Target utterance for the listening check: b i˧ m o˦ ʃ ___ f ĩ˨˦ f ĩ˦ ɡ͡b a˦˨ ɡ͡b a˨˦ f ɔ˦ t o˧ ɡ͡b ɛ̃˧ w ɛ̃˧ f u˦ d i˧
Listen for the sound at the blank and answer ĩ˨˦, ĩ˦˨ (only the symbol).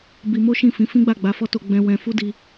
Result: ĩ˦˨